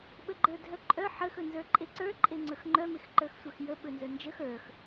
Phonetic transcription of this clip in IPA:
ɓəɡ͡ǃə˞dʱœǃʼœ ħəx ɵnzə˞ǃʼeǀə˞ ǃʼeŋ͡ǀɵxŋ͡ǃœ mexǃə˞xsʷœxjə ɓɵnzœnd͡ʒəx ə˞x

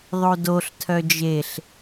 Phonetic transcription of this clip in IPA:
ðˤodoɬ tʰœd͡ʒeɬ

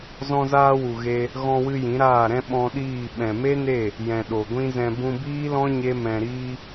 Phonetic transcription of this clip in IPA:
zɔ̃˧zaː˧wu˨ ɣe˦ | ɣɔ̃˧wɨ˧ jĩ˨˦ɾaː˦˨ɾɛ̃˦ ɓɔ̃˧ɗiː˦˨ ɓɛ̃˨me˦ne˦˨ | jɛ̃˨ ɗo˨ɡʷĩ˦zɛ̃˧ bũ˧biː˦lɔ̃˦ ɲe˦mɛ̃˧ ɾiː˧

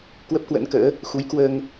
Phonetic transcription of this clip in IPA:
kwə˦˥p̚kwə̰˧˥nkə̰ː˧˥ | xu˨˦jkwəː˧ŋ

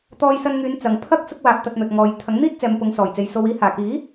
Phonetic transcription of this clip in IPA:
t̪ɔː˧jsɐ˧nŋyː˨˧n t͡sɐ˨ŋ pʰɐ˥k̚ sʊ˥k̚waː˧p̚t̪ɐ˧t̚n̪ɵ˨t̚ ŋɔː˨j t̪ʰɐ˨˥ŋn̪iː˥t̚t͡sɛː˨m pʊ˨˧ŋsɔː˨˩jt͡se˨jso˧w iː˨˧haː˨˩kiː˨˥

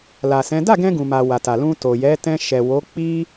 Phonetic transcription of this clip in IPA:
la˨sɛ̃˨˦ da˦˨ɡɛ̃˧ ɡũ˨ma˨ wa˨ta˨ lũ˧ to˨jɛ˨˦tɛ̃˧ ʃɛ˨wo˨˦k͡pi˦

